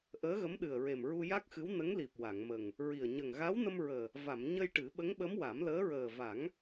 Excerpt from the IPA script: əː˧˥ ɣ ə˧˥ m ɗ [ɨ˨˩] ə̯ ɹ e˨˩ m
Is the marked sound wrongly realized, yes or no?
no